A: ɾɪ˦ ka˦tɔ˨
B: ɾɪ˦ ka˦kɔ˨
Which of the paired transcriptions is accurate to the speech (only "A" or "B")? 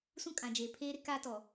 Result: A